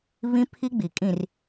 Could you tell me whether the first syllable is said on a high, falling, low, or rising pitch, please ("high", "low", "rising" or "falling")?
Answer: high